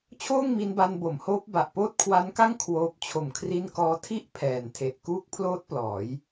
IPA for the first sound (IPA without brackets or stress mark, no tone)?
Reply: t͡ɕʰ